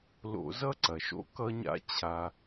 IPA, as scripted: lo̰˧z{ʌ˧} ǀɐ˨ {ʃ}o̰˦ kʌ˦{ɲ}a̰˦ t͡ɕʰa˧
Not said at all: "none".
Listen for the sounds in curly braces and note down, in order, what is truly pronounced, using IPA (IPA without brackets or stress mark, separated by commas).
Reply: ʌ˦, ʃ, ɲ